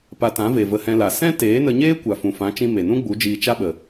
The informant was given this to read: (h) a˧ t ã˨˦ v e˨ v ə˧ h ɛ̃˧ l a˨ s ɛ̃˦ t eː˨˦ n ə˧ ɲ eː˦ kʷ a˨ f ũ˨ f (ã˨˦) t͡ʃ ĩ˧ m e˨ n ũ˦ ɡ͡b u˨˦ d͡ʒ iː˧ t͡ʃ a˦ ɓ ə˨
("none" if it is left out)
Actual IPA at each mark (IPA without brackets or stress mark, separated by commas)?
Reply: p, ã˨˦